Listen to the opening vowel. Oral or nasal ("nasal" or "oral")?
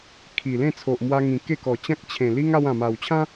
oral